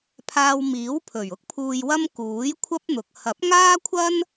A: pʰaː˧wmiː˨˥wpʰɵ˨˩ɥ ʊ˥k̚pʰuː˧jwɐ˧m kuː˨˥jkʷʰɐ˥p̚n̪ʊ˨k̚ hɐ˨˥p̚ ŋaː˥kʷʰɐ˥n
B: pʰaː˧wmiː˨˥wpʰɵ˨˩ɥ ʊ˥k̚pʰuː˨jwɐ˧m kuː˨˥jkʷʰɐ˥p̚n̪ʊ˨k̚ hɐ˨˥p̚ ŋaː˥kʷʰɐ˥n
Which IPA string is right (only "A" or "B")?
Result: B